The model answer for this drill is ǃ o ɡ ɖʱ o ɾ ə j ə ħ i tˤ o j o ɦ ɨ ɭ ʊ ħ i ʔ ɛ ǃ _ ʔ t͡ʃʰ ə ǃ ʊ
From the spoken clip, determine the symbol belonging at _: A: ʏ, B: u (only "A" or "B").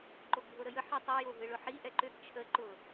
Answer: A